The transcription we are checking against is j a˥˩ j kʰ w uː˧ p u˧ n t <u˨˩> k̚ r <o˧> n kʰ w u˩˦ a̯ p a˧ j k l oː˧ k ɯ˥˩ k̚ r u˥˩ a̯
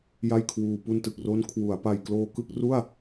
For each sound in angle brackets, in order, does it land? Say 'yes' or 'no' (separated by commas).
no, no